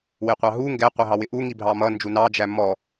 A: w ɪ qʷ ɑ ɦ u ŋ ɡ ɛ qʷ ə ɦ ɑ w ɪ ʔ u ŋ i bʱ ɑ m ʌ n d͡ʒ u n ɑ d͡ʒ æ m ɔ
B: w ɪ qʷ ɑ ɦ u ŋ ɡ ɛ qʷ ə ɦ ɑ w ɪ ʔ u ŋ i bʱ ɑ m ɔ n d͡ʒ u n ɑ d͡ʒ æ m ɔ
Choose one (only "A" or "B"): A